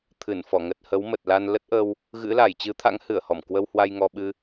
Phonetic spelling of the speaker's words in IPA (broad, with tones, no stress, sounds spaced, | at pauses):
t̪ʰ ɨ˧˩ n f ɔ˧˩ ŋ ə˨˩ t̚ h ə˨˦ w m ə˨˩ t̚ l a˧ n l ə˦˥ t̚ ʔ ə˧ w | ɣ ɨ̰˧˥ l a˧˩ j t͡ɕ ɨ˨˦ t̪ʰ a̰˧˥ ŋ h ɨ˧˩ ə̯ h ɔ˧˩ m k w ə˧ w h w a˧ j ŋ ɔ˧ ɓ ɨ˧